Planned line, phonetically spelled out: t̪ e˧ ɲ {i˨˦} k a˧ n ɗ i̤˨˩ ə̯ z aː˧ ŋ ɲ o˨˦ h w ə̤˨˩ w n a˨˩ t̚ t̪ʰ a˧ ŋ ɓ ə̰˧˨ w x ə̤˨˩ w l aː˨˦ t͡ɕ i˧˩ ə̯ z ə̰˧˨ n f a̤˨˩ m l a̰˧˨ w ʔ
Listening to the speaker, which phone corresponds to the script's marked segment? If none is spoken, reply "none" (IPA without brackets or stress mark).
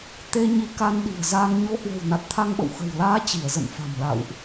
i˨˦